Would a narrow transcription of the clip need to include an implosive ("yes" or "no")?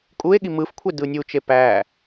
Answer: yes